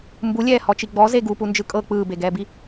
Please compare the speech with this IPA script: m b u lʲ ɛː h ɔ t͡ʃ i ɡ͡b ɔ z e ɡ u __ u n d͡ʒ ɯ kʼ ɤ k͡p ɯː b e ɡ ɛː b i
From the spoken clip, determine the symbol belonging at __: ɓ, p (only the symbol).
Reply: p